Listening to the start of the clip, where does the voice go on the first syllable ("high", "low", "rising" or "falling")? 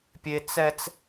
high